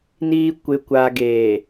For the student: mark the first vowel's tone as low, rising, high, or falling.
low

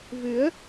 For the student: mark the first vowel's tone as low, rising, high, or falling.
rising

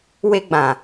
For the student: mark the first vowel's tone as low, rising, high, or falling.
high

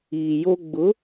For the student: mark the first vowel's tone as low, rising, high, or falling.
low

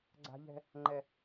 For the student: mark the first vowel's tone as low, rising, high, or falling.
high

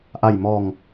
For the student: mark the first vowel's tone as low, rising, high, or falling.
low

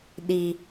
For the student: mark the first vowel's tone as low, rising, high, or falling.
high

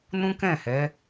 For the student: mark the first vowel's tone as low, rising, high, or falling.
high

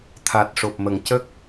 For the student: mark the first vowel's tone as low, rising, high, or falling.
low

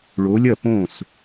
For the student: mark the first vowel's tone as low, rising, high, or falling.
rising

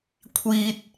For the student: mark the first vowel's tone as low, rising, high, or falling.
low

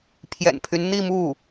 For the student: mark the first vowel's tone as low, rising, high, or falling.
low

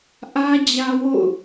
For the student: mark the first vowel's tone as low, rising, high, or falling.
high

